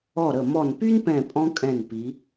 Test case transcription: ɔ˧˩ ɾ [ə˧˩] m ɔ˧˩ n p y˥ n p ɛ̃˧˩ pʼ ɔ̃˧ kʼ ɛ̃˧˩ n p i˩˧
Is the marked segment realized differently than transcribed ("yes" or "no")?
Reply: no